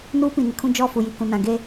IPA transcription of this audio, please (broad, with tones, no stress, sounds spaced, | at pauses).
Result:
n uː˦ p ĩ˨ n ɪ˨ kʰ ũ˦ d͡ʒ ɔ˦˨ f u˨ j i˨ k ũ˨ n ã˨ ɡ e˦